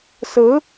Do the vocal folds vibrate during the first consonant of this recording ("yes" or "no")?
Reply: no